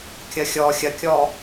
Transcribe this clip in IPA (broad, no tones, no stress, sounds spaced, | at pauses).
kʲ ɐ xʲ ɔ xʲ ɐ kʲ ɔː